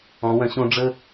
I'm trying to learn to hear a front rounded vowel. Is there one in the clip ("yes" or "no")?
yes